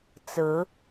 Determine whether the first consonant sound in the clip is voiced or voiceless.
voiceless